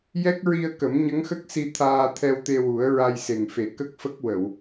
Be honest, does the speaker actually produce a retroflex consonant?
no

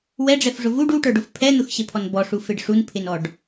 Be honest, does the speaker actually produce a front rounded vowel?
no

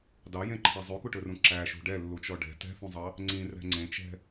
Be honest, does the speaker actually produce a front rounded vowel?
yes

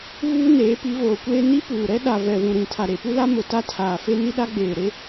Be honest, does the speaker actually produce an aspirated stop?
yes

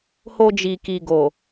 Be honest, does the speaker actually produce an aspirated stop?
no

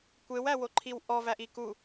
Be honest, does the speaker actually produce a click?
yes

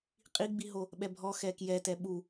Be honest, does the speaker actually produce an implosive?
yes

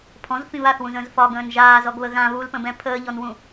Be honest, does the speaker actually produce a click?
no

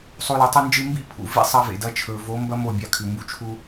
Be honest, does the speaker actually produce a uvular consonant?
no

